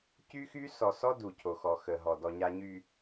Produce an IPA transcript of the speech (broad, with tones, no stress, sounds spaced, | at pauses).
c y˦ x y˦ s ɔ˨ s ɔ˦ d u˨ cʰ o˨ x ɔ˨ x ə˨ ɦ ɔ˨ d ɔ˨ ɲ a˨ ɲ y˨